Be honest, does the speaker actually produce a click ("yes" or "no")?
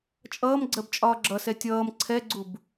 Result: yes